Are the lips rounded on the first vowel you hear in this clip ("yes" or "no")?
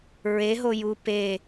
no